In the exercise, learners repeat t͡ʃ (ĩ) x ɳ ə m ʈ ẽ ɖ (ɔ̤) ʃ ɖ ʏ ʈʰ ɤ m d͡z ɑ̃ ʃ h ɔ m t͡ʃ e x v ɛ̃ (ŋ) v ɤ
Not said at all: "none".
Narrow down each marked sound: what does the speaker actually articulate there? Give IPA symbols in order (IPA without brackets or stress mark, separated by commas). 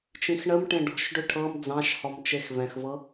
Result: ĩ, ɔ̤, x